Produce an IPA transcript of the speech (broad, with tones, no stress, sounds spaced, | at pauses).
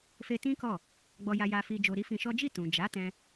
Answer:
f e˧ t ĩ˦ k ɔ˦˨ | ɡ͡b ɔ˧ j a˧ j a˧ f i˧ d͡ʒ o˧ ɾ i˦ f ĩ˧ ʃ ɔ˦ d͡ʒ i˦˨ t ũ˨ d͡ʒ a˨˦ t ɛ̃˦